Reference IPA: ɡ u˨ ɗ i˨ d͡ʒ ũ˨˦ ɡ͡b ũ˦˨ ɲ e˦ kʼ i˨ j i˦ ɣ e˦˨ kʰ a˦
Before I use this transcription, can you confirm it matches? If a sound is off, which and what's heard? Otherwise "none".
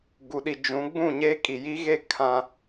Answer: a˦ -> ã˦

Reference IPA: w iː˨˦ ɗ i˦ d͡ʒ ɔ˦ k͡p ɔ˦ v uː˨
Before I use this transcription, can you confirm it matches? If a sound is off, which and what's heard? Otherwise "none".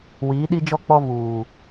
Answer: none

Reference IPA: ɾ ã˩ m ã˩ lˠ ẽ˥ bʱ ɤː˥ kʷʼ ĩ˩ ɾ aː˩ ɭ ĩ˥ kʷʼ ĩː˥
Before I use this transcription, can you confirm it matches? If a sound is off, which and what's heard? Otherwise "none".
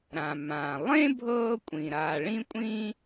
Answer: none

